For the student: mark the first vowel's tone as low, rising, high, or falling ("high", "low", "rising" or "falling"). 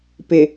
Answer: low